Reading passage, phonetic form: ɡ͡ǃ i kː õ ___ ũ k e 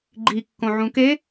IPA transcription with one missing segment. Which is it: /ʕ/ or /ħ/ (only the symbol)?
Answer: ʕ